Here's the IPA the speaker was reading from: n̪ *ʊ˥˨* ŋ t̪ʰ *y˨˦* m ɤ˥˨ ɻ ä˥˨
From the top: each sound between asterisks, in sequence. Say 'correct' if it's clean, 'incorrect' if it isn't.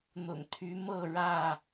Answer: incorrect, correct

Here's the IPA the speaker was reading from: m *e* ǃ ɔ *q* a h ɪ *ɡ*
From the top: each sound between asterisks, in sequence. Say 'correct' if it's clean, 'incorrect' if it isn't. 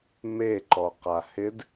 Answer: correct, correct, incorrect

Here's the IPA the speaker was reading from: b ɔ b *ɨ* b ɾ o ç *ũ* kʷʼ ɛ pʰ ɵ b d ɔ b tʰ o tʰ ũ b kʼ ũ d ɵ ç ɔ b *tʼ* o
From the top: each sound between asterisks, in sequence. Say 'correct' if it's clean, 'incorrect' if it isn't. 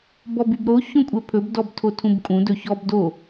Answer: incorrect, incorrect, incorrect

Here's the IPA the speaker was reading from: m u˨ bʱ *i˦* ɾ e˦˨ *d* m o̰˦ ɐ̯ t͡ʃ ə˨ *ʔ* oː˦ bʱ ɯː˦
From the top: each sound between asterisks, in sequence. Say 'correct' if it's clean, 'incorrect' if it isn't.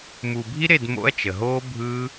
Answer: correct, correct, incorrect

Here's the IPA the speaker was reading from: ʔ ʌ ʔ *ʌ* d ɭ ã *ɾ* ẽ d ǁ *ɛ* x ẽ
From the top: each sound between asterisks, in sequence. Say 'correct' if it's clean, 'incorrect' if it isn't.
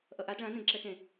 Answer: incorrect, incorrect, correct

